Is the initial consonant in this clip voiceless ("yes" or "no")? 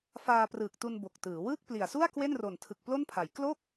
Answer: yes